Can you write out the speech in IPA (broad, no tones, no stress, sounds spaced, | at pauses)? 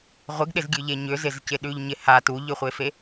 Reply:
ʁʷ ɪ ɡ ɗ ɪ z ɡʲ ʉ ʎ e ɲ ʏ z ɪ z c ɪ ɗ ʉ ʎ ɲ ɪ h a t u ʎ ʏ χʷ e f e